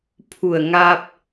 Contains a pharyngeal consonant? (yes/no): no